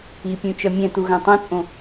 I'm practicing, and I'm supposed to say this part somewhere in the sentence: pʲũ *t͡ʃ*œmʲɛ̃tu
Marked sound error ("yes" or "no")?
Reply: no